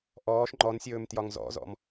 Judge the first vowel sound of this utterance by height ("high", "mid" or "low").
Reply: mid